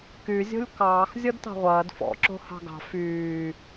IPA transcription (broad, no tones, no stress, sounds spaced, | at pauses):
k y zʲ o̤ lʲ k ɑː x zʲ ɔ d t ɑ̤ ʁʷ ɐː d f ɔ̰ ǁ o̤ h ɑ̤ ɡ ɑ̤ f yː